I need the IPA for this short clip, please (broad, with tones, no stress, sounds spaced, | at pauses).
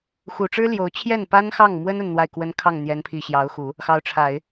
x u˨˩ ʈ͡ʂ ɻ̩˥ l j o˧˥ ʊ̯ t͡ɕʰ j ɛ˥˩ n p a˥ n x ɑ˥˩ ŋ m w ə˥ n ə˥˧ n n̪ w a˥˩ ɪ̯ k w ə˥ n kʰ ɑ˥˩ ŋ n̪ j ɛ˧˥ n pʰ i˨˩ ɕ j ɑ˧˥ ʊ̯ x u˨˩˦ | x ɑ˧˥ ʊ̯ ʈ͡ʂʰ a˨˩˦ ɪ̯